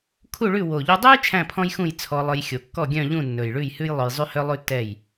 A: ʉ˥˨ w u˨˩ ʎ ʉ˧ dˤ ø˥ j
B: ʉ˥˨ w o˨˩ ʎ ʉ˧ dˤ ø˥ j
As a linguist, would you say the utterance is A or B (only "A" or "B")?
B